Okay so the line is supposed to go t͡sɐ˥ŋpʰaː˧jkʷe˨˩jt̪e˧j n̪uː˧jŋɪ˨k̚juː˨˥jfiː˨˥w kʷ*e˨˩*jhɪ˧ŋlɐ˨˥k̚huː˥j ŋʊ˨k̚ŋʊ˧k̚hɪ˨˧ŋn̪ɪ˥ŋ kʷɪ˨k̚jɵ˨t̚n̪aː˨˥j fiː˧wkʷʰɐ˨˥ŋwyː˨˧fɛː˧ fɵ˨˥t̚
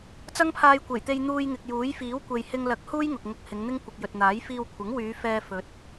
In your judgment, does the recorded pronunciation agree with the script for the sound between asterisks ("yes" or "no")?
no